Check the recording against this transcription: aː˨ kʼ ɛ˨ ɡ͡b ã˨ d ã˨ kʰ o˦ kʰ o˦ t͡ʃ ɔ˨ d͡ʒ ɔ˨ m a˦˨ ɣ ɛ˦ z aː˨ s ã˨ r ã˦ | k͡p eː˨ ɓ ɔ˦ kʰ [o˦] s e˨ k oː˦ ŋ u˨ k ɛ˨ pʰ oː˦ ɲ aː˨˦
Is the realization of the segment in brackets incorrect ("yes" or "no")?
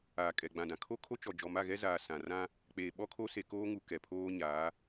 no